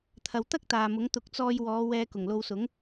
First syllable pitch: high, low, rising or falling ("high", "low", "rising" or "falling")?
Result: low